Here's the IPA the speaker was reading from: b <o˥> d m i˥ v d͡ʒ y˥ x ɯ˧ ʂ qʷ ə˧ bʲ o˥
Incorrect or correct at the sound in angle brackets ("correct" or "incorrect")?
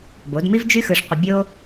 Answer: incorrect